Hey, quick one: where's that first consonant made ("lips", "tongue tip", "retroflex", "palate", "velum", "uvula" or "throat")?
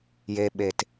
palate